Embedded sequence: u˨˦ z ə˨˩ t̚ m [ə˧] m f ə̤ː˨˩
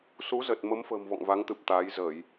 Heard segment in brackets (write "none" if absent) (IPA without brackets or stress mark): ə˨˦